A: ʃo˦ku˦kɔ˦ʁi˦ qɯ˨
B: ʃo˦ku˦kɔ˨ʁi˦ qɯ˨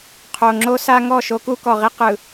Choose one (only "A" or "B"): B